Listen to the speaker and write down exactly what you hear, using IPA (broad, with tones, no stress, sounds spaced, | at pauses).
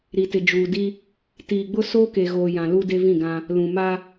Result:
ɾ i˨ t ɪ˨ d͡ʒ uː˨ d i˦ | t iː˨ ɡ͡b ʊ˦ s oː˦ k e˨ ɣ oː˨ j ã˨ l u˦ d e˦ v ĩ˦˨ ɡ ã˦ | l ũ˨ m a˦